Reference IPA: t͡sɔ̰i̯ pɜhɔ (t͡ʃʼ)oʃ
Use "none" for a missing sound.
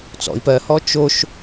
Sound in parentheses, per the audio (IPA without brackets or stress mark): t͡ʃ